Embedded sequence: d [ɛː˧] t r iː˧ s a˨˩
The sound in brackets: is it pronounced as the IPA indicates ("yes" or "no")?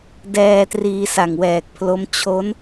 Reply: yes